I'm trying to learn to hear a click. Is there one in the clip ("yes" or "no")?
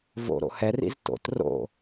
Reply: no